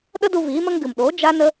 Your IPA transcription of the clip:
ɗə˦du˧ viː˨˦mə˦ŋ ɡɨ˨mɗoː˨˦ d͡ʒa˦nə˦

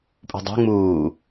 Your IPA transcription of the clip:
pʼṳdˤṳ ŋ͡muː

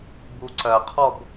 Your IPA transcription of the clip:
buǀɜqʰɔb

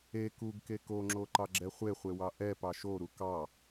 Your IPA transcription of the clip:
e kuɡke koŋ͡ǁoǃɑɡ͡ǁɛ χʷeχʷewɑ ʔɛpɑ ʃoɾu kɑ

